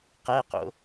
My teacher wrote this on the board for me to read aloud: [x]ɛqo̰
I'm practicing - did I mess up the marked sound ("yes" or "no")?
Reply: yes